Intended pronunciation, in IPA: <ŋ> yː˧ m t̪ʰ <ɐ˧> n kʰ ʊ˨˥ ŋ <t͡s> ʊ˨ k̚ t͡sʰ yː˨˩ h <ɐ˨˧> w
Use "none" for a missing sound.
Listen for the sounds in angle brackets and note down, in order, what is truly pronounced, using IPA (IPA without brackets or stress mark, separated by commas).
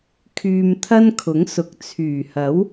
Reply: kʰ, ɐ˥, s, ɐ˨˥